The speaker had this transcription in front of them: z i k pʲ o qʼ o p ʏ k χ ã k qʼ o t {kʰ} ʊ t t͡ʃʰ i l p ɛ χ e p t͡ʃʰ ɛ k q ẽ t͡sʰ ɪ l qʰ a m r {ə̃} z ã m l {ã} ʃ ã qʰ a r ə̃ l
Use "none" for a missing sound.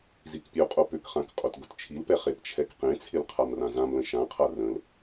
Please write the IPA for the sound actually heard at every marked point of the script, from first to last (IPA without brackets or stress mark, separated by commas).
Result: ɡ, ã, ə̃